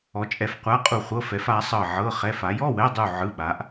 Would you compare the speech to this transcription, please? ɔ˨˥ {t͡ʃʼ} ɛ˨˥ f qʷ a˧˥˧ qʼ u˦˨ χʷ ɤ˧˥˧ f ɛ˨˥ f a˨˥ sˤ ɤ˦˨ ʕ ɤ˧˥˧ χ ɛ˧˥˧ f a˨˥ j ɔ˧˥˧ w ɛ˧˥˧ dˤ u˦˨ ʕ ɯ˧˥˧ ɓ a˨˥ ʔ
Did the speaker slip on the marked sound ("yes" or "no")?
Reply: no